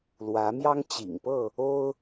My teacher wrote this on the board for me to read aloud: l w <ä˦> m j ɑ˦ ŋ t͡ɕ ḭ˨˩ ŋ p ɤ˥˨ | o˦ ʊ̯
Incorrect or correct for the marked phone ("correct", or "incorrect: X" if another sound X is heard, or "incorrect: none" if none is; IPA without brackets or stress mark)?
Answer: incorrect: ä˨˦